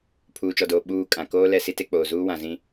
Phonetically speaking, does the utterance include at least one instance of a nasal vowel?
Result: yes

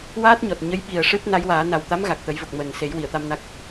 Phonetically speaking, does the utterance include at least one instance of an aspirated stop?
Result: no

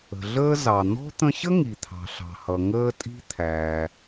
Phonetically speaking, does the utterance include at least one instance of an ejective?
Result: yes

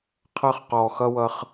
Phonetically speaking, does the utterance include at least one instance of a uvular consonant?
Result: yes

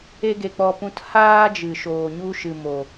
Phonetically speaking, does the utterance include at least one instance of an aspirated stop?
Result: no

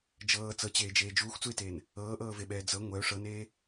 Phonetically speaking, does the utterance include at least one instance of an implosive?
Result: yes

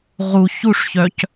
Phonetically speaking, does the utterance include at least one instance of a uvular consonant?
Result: yes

